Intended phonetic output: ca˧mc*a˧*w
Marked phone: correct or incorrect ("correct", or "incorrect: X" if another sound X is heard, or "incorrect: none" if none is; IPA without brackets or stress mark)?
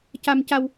correct